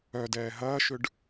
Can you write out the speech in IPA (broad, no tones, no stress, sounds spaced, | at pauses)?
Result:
œ d ɛː ɦ ɐː ʃ ʏ ɖ